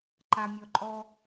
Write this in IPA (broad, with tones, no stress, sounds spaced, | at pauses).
ǃ a˨ mʲ ɔ˨ ǃʼ ɔ˦